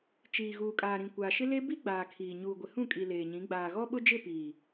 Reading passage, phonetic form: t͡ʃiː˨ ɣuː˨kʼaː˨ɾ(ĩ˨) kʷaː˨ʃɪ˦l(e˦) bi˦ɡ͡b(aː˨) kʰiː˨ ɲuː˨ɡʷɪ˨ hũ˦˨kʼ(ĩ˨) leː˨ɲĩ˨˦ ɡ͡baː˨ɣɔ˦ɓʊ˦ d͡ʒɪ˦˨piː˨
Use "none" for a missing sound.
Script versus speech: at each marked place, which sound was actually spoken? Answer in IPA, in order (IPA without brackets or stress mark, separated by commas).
ĩ˨, e˦, aː˨, i˨